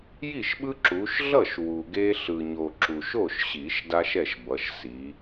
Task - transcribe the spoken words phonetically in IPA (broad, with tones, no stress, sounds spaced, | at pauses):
j i˥˩ ʃ ɓ ɯ˦ ǁ u˨˦ ʃ ɮ ʌ˥˩ ʃ w u˨ ɡ e˦ ɬ ɯ˨ ɲ o˨ ǁ u˨ ʃ o˥˩ ʃ ɕ i˨˩˦ ʃ d a˦ ʃ ɛ˥˩ ʃ b ʌ˨˦ ʃ s i˨˦